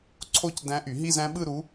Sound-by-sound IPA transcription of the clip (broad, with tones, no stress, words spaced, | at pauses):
ǀʰo˥˧c dæ̃˧˥ʔy˨˩˦ɦi˥˧z æ̃˧˥ɓɯ˥˧ɾu˧˥